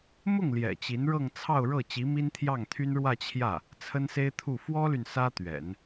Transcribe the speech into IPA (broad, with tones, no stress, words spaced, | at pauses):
mʊ˥˩ŋ ljɛ̰˨˩t͡ɕi˧˥nɻɤ˥˧ŋ t͡sʰɑ˥˧ʊ̯ɻɤ˥˩ t͡ɕi˧˥mi˥nt̪ʰjɑ˥˩ŋt̪ʰy˥n ɻwä˥˧t͡ɕʰjä˥˩ | t͡sʰə˥nse˥ɪ̯t̪ʰu˥˩ fwɔ˥ly˨n sä˥t̪ɥɛ̰˨˩˦n